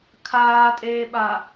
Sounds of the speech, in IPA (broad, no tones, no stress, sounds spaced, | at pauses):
kʰ aː tʼ eː ɓ a